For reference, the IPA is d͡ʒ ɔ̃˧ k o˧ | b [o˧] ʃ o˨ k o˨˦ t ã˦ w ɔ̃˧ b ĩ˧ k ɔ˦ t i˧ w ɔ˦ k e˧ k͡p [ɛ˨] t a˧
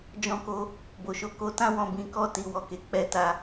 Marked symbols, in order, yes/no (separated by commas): no, no